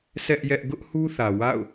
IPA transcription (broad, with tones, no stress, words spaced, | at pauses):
sɛ˦ʔjɛ˦ʔ ɡʊ˦ʔ hu˦θä˨ wa̰˦˨ʊ̯